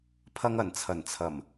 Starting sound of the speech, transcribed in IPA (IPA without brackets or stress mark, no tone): pʰ